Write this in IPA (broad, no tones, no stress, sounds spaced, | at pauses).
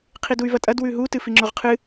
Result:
qʰ i d u y̯ v ɐ tʼ ɐ d w ʉ ɦ u t ɨ f i ŋ͡ǁ o ʁ qʰ ɨ